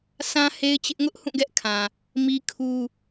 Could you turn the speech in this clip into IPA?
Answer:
sʰ ã˦ h e˦ ɪ̯ t͡ɕ ɪ˦ ʔ ŋ ʊ˦ ʔ h ũ˦˨ ɡ ɛ˦ ʔ kʰ ã˨ | m i˦ kʰ u˦

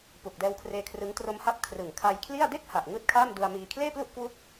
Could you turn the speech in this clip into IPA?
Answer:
p u˨˩ k̚ d ɛː˧ w kʰ r eː˧ kʰ r ɯ˦˥ ŋ t r o˧ m h a˦˥ p̚ kʰ r ɯ˨˩ ŋ kʰ a˧ j kʰ l i˥˩ a̯ d e˥˩ k̚ h a˨˩ ʔ ŋ ɯː˥˩ t̚ kʰ aː˥˩ m d u˧ a̯ m iː˧ kʰ l eː˥˩ p l u˥˩ ʔ k w u˥˩ k̚

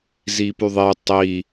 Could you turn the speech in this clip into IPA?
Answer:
z i p y ðˤ i tˤ i

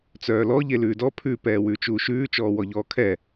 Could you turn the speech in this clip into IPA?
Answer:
t͡s œː l ɔ ʎ e l ʉː d ɔ pʰ ʉ p ɛː w ʉː t͡ʃ uː ʃ ʉː t͡ʃ ɔː w ɔ ʎ ɔː kʰ ɛ

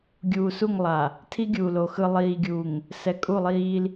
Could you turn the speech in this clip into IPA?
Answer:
ɡʲ uː˨ s u˦˨ ŋ lˠ a˨ | tʰ i˦ ɡʲ uː˨ l o˨ x ɯ˨ lˠ iː˨ ɡʲ uː˨ ŋ | s ɛ˨ kʼ u˦˨ lˠ iː˦ l

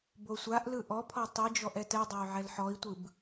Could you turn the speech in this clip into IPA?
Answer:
b o sʷ a ʔ l ɯ ʔ ɔ pʰ ɔ tˤ i d͡ʒ ɔ ʔ ɛ t ɛ dˤ a y̯ ʕ ɛ l ħ ɔ i̯ tʷ ɯ b

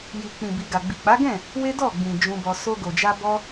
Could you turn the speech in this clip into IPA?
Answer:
j i˨ k͡p ĩ˨ b i˨ ɡ a˨ ɡ͡b i˨ k͡p a˨˦ ɡ ɛ̃˦˨ | w e˦ d ɔ˦˨ ɡ͡b ĩ˨ d͡ʒ ũ˧ b ɔ˧ s o˧ ɡ o˨ d͡ʒ a˧ b ɔ˧

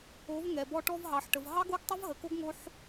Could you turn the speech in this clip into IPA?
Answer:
o˨˦ v ŋ ɛ˨ b ɔ˧ ʈ ɔ˧ v ɦ ɑ˨ ħ ʈ ə˨ v ɦ ɑ˦ ɡ o˦ ɡ tˤ ə˦ v ɦ ə˨ k o˦ ɡ ŋ o˦ ħ

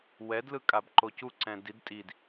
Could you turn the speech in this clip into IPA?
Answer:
w ɛ d l ɯ kʼ a b ǃ o c u ǀ ɛ̃ d i d tʼ i d

